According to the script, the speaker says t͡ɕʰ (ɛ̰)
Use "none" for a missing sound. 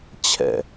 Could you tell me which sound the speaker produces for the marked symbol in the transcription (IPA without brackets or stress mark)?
ɛ̰